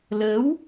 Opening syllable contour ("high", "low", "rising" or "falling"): rising